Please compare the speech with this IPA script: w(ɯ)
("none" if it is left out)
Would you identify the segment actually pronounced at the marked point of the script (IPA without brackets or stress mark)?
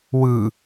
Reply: ɯ